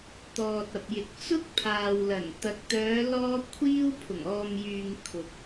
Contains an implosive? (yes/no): no